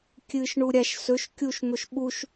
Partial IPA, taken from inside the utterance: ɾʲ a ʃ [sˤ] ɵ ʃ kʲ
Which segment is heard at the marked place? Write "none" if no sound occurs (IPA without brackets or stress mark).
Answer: s